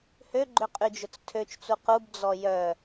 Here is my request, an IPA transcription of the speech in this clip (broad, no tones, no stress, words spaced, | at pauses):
høɡ͡ǃø qʼyd͡ʒʊt͡stʰøt͡ʃt͡su qubd͡zɔ jœ